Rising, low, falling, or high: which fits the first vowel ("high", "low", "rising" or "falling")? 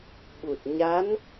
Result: low